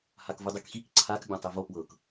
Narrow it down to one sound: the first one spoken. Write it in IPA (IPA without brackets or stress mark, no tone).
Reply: h